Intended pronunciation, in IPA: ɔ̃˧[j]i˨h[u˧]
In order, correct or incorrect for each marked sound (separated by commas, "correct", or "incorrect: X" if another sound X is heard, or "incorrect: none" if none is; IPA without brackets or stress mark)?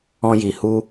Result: correct, correct